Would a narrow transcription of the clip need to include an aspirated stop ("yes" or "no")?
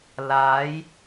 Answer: no